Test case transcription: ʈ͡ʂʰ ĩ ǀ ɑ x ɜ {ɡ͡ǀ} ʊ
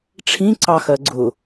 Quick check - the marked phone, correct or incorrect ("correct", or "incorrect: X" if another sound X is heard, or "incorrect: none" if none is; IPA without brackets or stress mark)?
correct